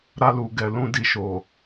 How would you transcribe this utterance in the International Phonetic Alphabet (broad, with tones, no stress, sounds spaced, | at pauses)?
ɾ a˧ l u˨ ɡ ɛ˨ l ũ˧ d i˨ ʃ o˨